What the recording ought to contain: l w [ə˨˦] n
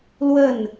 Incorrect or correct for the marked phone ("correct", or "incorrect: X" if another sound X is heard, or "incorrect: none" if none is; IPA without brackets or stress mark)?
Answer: incorrect: ə˥˨